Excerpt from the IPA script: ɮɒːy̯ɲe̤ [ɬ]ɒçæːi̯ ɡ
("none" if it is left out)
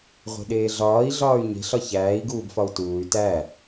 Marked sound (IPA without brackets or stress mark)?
ɬ